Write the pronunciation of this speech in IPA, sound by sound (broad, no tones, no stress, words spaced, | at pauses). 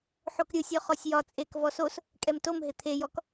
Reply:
ħokɾʲɯsʲɔ χɔsʲjɒ t͡sʼek vɔsos | kʼɛmtomɦɪ t̪ʰejɔk